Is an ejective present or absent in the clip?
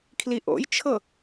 absent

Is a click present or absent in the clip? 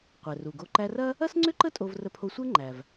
present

